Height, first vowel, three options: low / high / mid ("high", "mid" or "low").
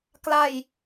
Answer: low